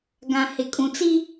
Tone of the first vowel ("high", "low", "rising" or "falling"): low